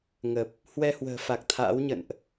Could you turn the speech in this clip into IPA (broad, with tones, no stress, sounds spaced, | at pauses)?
ŋ ə˨˩ p̚ | h w ɛ˧ h w ə̤ː˨˩ f a˨˩ k̚ t̪ʰ a̰ː˧˥ w ɲ ə̰˧˨ n ʔ